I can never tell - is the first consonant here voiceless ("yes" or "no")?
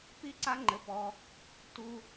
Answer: yes